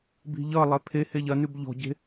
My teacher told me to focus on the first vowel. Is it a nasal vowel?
no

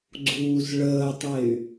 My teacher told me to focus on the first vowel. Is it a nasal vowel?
no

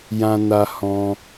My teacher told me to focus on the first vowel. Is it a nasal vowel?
yes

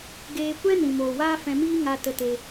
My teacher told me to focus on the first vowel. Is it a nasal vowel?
no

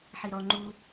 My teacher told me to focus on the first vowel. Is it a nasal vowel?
no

